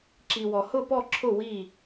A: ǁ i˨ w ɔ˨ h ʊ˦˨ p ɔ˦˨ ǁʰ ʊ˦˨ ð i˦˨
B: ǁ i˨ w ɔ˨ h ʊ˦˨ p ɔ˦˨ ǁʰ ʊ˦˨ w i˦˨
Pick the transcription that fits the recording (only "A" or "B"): B